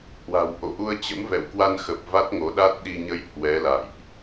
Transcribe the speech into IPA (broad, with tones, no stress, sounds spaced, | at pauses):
h w a̤˨˩ w ʔ o̰˧˨ ʔ u˧ ə̯ t͡ɕ ə̰˧˥ m v ɛ̰˧˨ w k w a˧ n x ə˨˩ p̚ v a˦˥ t̚ ŋ o˨˦ ɗ a˦˥ t̚ ɗ i˧ ɲ ə˧ j h w ɛ˨˦ l a̰˧˨ j ʔ